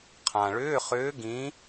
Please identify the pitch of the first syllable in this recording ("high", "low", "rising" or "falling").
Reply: low